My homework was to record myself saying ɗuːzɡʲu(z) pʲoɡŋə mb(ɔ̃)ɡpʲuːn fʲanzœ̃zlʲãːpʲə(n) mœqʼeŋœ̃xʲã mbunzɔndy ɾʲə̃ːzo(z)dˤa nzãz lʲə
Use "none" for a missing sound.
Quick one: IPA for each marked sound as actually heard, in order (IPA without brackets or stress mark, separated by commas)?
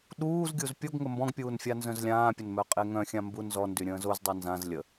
z, ɔ̃, n, z